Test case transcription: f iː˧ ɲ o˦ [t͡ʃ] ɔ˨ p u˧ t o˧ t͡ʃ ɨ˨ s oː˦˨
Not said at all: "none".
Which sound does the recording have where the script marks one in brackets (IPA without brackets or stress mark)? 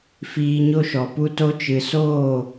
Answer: ʃ